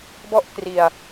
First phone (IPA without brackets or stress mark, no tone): b